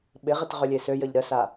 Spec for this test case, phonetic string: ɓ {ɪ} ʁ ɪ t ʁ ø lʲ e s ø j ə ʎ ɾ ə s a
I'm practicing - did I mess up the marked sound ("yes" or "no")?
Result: no